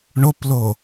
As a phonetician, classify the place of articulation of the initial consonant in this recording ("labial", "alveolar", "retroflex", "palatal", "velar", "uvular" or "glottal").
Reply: retroflex